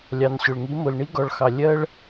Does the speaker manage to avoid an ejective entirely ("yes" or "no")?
yes